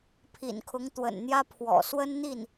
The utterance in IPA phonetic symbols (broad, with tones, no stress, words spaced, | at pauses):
pʰḭ˨˩nkʰʊ˧˥ŋ t̪wə̰˨˩nn̪jä˥pʰwɔ̰˨˩ swə˥n n̪i˥˩n